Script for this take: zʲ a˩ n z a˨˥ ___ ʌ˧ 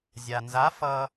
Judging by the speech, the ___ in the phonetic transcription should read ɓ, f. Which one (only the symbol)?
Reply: f